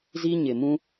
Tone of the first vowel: high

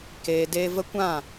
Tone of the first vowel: low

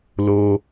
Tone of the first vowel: high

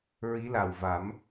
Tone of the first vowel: rising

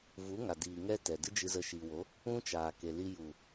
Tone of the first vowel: rising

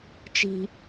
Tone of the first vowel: low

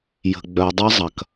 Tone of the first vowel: low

